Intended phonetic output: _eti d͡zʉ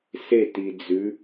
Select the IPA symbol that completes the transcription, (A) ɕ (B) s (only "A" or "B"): B